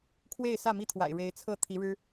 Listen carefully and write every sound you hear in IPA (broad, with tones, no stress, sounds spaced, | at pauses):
kʰ w e˥˨ ɪ̯ s ä˥˨ m i˦ t̪ʰ w a̰˨˩ ɪ̯ ɻ e˨˦ ɪ̯ t͡sʰ ɤ˥˨ t̪ʰ i˨˦ ɻ ɻ̩˦